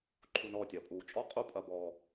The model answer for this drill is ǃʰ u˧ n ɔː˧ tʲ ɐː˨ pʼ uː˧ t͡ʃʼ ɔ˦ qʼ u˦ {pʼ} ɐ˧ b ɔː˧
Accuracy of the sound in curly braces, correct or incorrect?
correct